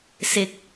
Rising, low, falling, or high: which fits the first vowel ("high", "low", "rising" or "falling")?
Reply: rising